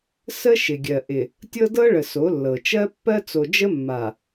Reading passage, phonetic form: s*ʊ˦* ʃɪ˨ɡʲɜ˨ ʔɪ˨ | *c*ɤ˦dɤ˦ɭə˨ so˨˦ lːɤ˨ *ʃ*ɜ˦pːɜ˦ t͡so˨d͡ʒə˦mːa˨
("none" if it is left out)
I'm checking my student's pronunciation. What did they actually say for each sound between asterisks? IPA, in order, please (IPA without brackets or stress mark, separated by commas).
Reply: ə˦, tʲ, t͡ʃ